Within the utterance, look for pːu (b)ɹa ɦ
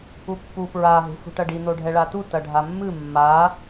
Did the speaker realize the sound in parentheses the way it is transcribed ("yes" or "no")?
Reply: no